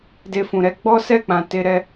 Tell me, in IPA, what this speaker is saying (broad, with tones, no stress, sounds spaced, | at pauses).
d e˧ f ũ˨ ɾ ɛ˧ ɡ͡b ɔ˦ s ɛ˦˨ k͡p ã˨ t e˧ ɾ ɛ˦